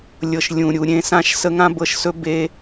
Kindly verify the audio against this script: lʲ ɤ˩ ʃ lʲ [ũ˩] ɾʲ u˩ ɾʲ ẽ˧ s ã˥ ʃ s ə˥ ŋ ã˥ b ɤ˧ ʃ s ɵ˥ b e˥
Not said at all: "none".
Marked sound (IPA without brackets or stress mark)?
ũ˩